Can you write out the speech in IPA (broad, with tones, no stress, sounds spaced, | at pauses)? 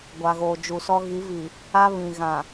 ɡʷ a˨ ɣ oː˨ d͡ʒ u˨ s ɔ˦ ɣ i˨˦ v i˨ | a˦ β ĩ˨ ɣ ã˨